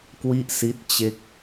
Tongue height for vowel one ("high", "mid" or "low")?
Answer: high